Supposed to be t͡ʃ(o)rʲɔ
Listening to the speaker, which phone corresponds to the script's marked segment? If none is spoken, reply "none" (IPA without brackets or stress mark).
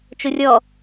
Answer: o